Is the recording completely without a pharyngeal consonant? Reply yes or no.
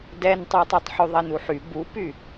no